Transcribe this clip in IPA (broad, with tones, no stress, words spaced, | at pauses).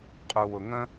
qʼu˩wʊ˩ŋə̃˥